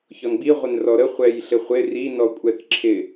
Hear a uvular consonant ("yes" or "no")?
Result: yes